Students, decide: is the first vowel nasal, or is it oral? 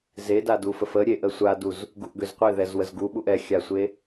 oral